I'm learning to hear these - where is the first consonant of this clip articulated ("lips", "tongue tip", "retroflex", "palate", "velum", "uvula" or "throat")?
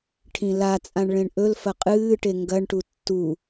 retroflex